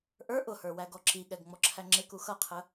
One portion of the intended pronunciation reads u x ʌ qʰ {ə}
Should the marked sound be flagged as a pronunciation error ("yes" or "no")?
no